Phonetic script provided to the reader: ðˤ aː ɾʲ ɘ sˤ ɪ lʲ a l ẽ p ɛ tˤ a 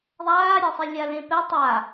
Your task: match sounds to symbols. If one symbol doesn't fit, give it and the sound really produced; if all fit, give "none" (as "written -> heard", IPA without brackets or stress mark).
none